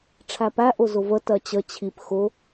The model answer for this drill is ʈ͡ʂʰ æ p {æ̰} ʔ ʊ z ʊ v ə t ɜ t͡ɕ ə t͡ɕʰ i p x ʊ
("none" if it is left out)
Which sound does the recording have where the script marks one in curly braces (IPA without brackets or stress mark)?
æ